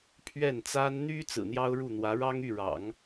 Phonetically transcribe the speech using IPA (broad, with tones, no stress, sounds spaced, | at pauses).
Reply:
pʰ ɥ ɛ˥˩ n t͡s a˥ n n̪ y˥ t͡s ɹ̩˨˩ n̪ j ɑ˥ ʊ̯ ɻ u˥˩ n̪ w ä˧˥ ɻ ɑ˥ ŋ y˥˩ ɻ ɑ̰˨˩˦ ŋ